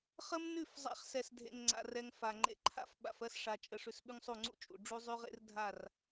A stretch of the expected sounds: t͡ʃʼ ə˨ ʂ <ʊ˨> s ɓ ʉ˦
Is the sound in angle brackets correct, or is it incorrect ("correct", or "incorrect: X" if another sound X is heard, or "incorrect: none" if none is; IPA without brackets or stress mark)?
incorrect: ʉ˨